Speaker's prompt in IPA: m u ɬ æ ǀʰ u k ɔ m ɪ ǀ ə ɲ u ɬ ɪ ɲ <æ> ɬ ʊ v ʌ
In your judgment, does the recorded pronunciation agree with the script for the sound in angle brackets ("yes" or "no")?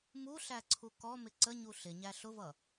yes